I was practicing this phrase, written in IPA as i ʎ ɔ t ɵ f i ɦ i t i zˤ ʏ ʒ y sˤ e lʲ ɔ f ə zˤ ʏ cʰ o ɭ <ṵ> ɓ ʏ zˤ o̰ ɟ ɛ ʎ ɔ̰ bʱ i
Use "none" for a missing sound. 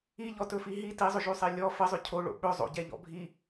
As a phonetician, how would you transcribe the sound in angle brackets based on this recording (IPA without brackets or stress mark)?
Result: o̰